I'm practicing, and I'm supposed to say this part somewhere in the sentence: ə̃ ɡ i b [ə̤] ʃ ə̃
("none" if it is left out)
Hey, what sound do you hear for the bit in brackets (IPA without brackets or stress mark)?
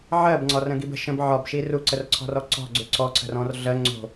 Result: ə̤